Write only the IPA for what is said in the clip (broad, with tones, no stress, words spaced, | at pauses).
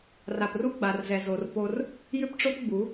ra˨pru˦ɡ͡ba˨rzɛ˨ zo˨r po˦r | jʏ˦pʈ͡ʂo˦pɡ͡bu˨˦